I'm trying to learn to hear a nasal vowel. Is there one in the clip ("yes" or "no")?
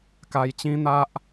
yes